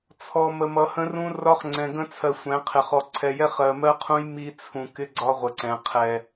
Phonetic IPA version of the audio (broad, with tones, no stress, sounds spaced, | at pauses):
t͡sʰ ɔ˨ m ə˨ m ʌ˨ h ə̃˦ r ũ˦ r ɒ˦ χ ŋ͡ǀ ɛ̃˨ ɡ ə̃˦ t͡sʰ ɜ˨ sʷ ɛ̃˨˦ qʰ ɪ˨ χ ɔ˨ ǀʰ ɛ˨ j ɛ˦ χ ɜ˨ m ɜ˦ qʰ ũ˦ j m i˦ t͡sʰ ũ˨ k ɪ˦ ɡ͡ǀ ɒ˦ ʁʷ ə˨ ǀ ɛ̃˨ qʰ ɛ˨